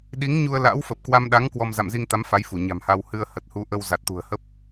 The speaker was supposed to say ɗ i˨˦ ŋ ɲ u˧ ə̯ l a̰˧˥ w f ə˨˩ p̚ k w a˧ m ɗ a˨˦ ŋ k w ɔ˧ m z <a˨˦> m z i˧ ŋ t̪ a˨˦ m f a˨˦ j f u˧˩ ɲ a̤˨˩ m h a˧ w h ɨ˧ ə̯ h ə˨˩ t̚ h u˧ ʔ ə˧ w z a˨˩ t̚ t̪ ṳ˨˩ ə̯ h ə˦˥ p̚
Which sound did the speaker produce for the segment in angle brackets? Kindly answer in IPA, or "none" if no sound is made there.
a̰˧˨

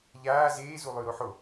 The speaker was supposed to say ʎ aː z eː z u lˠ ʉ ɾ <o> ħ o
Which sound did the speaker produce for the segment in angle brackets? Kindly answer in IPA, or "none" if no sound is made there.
o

